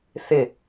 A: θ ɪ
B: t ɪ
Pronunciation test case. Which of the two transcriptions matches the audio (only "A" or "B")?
A